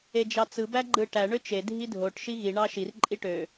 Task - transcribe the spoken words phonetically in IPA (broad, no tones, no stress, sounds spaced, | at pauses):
e d͡ʒ ɑ t͡s ɯ b æ ɡ͡ǃ ɯ ʈ æ ɳ ø t͡ʃ e dʱ i dʱ o ʈ ʃ i ɣ i ɳ ɑ ʃ i r ǃʼ i ʈ ø